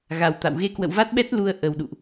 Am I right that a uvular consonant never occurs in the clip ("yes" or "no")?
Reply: yes